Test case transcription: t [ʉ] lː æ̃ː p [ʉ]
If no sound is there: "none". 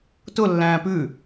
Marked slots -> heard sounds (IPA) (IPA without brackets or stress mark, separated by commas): ʊ, ʉ